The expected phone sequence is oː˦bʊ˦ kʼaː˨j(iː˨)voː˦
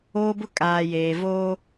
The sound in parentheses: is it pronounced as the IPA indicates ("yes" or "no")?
no